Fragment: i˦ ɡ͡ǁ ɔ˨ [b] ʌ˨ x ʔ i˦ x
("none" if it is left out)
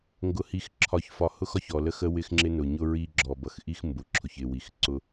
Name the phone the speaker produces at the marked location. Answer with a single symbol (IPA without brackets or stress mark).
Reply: b